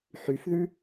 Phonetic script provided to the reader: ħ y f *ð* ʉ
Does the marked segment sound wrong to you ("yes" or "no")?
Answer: no